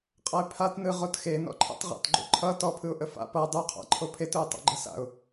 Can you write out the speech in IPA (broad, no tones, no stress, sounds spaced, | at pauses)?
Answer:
qʼ ʌ ɪ̯ pʰ a t n ɯ ʁ o t x e n ɔ̰ ǃʰ ə̰ tˤ ʁ a̰ t ɡ͡ǃ o̰ ǃʰ ʌ t ɔ pʰ ɯ ʊ̯ ʔ ə f a̰ p ʌ dˤ u qʰ a̰ ǃʰ o pʰ e t ʊ ɪ̯ tˤ o̰ ɡ͡ǃ ə s a̰ ʊ̯